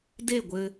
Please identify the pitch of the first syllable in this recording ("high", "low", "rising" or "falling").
falling